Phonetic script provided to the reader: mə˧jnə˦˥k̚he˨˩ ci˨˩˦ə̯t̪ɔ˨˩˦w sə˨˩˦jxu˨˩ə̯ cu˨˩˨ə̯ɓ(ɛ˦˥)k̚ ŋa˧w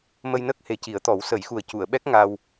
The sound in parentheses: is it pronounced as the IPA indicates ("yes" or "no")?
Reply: yes